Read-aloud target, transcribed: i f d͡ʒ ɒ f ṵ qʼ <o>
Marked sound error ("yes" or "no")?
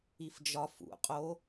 no